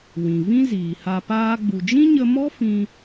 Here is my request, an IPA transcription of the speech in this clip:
w ĩ˨ v ĩ˦ z iː˨ h a˧ p aː˦ ɡ͡b u˨ d͡ʒ ĩ˦ ɲ ə˧ m ɔ˦ f ĩ˧

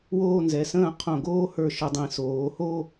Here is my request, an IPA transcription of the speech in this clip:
w oː˥˧ n z ɛ˩˧ s ə̃ː˥˧ qʰ õ˧˩ ɡ oː˥ h ə˞˧˩ ʃ ə˩˧ dˤ ĩ˩˧ s oː˩˧ h o˥˧

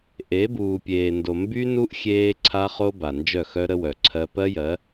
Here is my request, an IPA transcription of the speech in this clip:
ʔ e˨˦ b uː˨ pʲ eː˨ n d o˨ m b y˦ n u˦ ʔ xʲ eː˦ ǀʰ a˦ χ o˦ b a˨ n d͡ʒ œ˦˨ x œ˦ ɾ ə˦ w œ˨ ǀʰ ɜ˦ p ɜ˦ j ɜ˨˦

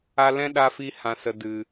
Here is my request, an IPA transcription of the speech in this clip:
a˧ l ɛ̃˦ ɗ a˧ f i˧ h ã˨ s ə˨ d ɨ˨

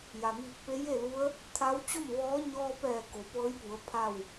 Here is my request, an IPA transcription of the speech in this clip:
j a˩ m iː˧˩ k̚ p e˧˥ j e˥˨ l u˧˥ ə̯ | t̪ʰ a˧˥ w t͡ɕ o˥˨ m ʋ ɔː˧˥ ɲ ɔː˧ p ɛː˧˩ k o˩˧ p ɤː˧˥ j p u˩˧ ə̯ pʰ a˥˨ w

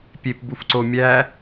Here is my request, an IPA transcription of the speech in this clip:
pʲ e p b u f ǀ o mʲ æ

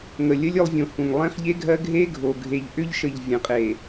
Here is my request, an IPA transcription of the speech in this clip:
ŋ ə˨ lʲ ə˦ lʲ ʏ˦ lˠ vʲ õ˨ h ũ˨ ŋ lˠ ẽ˦ χ ʎ e˦ ɡʱ ɜ˦ ɡʱ e˦ ɡʱ o˨ ɡʱ e˨ ʎ ʔ ʏ˦ ʎ ʃ ə˨ ʎ vʲ ə̃˨˦ qʼ e˨

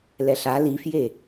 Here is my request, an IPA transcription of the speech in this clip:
l ɛ ɬ a l i f j e

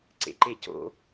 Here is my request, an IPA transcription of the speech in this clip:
ǀ ḛ ǃ e c o̰

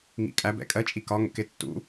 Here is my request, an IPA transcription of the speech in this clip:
ŋ ḭ kʼ æ b ɛ̰ kʼ ɜ t͡ʃʼ i k ɒ ŋ ə̰ k ɪ tː ṵ

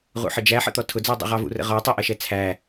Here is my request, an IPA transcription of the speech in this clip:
ʁ ṵ ħ ə d͡ʒ æ ħ ə̰ t̪ ɔ tʰ ʊ d͡z ə˞ dˤ ṵ ʁ ɑ v ṵ r ə̰ ʁ ɔ tˤ ʊ ʔ ʌ ʃ ɛ t͡sʰ æ

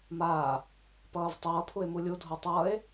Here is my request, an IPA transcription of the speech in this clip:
m aː | p ʌː v tˤ ʌː pʰ u e̯ m u lʲ u dʱ o tˤ ʌː e̯

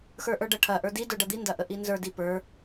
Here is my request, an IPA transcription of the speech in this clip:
x ə˞ ʔ ə˞ ɖ ɐ ʈʰ ɐ ʔ ə˞ d i d ə˞ ɖ ɐ d̪ i n d ɐ ʔ ə ʔ i n z ə˞ d i p ə˞

